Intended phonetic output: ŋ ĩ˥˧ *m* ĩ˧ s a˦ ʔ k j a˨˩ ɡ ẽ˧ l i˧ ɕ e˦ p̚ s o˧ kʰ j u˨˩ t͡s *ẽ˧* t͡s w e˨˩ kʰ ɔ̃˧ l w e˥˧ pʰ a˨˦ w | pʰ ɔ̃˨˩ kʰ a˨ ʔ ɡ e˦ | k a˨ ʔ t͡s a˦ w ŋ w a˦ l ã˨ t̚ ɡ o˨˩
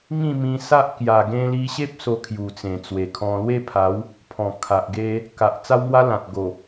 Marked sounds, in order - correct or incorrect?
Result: correct, incorrect: ẽ˨˩

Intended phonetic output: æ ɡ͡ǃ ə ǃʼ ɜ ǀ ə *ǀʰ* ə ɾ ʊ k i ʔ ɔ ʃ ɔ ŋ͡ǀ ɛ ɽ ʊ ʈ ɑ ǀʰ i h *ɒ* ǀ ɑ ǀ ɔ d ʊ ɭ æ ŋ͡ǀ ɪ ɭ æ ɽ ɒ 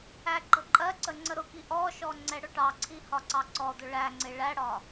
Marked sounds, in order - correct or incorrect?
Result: incorrect: ŋ͡ǀ, correct

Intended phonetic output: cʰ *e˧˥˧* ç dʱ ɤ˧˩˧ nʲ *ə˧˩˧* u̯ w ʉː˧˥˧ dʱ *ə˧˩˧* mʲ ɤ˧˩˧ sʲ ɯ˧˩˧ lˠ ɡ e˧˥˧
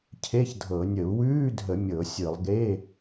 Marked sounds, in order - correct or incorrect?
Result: correct, correct, correct

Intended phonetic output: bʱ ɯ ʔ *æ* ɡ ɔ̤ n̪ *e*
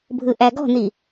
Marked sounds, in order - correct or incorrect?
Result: correct, incorrect: i

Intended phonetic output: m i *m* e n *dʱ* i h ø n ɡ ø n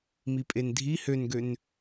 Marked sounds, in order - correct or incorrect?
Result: incorrect: pʼ, correct

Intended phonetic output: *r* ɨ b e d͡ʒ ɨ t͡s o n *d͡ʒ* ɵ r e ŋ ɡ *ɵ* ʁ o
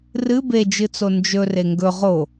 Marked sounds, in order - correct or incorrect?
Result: correct, correct, correct

